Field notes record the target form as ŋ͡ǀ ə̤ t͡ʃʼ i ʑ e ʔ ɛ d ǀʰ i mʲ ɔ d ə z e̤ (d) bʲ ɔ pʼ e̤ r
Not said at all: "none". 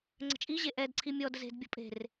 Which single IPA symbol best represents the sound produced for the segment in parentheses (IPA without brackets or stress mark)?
d